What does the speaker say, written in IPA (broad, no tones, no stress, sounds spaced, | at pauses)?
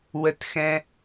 w ə t x ɛ̃